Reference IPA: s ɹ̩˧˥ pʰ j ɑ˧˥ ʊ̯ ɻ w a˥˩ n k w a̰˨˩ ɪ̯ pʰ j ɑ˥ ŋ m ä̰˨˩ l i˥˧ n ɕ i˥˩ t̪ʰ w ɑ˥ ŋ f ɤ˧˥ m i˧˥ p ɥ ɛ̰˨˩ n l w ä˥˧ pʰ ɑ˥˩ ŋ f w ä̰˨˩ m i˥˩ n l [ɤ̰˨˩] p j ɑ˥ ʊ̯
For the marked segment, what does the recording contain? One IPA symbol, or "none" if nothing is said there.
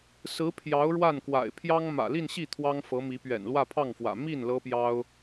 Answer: ɤ˥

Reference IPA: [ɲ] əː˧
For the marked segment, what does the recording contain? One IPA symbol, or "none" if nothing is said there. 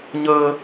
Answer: ɲ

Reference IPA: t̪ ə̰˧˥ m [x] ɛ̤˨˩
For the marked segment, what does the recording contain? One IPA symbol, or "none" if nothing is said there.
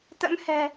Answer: h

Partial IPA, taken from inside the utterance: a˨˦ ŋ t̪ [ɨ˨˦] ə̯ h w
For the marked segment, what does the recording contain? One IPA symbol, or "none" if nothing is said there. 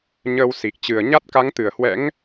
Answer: ɨ˧˩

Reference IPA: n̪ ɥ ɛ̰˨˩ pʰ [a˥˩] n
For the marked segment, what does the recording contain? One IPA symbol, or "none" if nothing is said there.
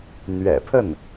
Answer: ə˥˩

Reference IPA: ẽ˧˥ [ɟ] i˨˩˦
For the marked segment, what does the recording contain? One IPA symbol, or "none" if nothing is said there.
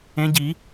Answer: ɟ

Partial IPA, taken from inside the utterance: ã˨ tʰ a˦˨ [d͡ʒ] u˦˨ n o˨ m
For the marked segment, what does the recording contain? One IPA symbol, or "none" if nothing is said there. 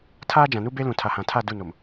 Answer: d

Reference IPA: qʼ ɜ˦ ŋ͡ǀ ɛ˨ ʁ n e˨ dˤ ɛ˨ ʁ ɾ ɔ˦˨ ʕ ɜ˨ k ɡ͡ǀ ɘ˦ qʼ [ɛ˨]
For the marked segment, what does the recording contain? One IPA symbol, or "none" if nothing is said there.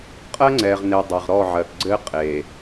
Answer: e˨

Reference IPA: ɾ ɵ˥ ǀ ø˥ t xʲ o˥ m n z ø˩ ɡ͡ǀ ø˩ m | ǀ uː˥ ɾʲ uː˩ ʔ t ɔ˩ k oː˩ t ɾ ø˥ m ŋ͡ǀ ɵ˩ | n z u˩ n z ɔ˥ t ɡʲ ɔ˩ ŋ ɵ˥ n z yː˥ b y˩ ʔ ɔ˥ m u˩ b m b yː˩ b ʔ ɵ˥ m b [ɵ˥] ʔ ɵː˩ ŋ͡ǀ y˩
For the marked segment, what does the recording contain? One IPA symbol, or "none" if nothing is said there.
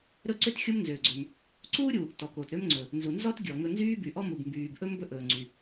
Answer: ɵ˥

